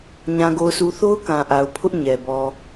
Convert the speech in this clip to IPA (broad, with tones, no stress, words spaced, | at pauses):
ɲã˨ɡo˨ʊ̯sʰu˨ θo˦ʊ̯ kã˨ʔa˨ʊ̯ pʰʊ˦ʔ ɲɛ˨ bɔ˨